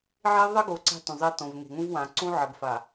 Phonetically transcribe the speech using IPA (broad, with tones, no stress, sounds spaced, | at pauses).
ʕ e˦ ðˤ ɘ˦ ɡ o˨ ǀ a̤˦ t ũ˨ zˤ e˦ t õ˨ v ŋ e̤˨ ŋ ũ˦ v w ã˨ ǀ ũ˦ ʕ ə˨ ɡ f a˨